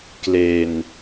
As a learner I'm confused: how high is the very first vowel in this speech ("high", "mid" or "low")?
mid